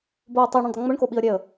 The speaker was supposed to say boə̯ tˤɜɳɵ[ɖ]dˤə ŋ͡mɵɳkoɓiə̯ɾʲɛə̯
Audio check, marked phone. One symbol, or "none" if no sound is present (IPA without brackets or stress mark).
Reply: ɳ